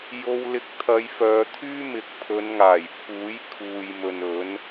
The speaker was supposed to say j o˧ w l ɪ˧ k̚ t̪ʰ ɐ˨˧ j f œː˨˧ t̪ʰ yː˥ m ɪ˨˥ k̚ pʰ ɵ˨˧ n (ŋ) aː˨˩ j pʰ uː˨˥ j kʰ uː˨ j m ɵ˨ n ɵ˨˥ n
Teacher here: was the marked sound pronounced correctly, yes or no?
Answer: yes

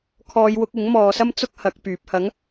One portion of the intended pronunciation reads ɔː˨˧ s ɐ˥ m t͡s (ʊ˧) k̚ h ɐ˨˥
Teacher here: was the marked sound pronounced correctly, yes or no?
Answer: no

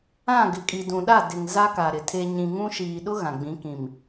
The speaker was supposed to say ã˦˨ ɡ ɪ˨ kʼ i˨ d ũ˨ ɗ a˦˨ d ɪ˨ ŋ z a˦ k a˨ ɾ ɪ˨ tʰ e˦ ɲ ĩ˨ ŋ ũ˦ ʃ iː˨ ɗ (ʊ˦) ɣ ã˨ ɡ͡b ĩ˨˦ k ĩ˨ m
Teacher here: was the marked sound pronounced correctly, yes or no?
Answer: yes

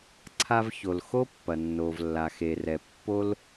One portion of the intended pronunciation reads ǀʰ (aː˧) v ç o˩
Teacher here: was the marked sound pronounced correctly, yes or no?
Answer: no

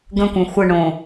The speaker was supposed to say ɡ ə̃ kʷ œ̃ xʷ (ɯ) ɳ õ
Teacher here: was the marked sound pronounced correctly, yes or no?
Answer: no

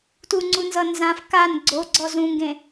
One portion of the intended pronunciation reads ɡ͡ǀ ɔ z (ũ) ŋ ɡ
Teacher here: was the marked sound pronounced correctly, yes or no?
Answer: yes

